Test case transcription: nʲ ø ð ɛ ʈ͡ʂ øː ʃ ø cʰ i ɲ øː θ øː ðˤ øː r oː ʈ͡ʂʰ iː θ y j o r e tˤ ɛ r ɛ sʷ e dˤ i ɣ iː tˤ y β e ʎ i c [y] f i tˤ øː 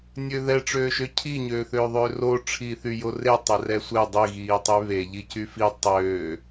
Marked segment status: correct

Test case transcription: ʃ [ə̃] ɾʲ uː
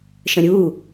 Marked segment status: correct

